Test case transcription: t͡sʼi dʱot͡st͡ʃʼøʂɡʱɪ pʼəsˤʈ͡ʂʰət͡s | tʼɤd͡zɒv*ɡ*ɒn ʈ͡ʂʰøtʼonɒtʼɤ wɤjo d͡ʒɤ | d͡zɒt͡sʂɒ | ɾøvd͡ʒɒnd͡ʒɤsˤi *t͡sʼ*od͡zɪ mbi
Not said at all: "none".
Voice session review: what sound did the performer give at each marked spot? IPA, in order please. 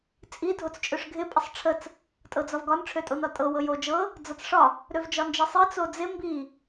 ɡ, t͡s

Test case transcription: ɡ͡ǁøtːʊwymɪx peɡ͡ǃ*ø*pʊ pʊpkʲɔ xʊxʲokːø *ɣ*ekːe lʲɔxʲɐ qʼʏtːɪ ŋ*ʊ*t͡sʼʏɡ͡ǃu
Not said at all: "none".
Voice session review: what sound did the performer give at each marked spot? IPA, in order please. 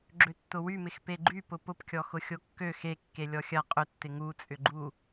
y, x, u

